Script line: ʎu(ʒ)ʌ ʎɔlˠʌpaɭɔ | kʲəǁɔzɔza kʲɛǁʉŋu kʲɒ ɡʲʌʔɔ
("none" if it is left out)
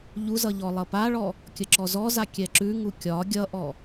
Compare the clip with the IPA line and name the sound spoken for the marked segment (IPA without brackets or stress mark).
z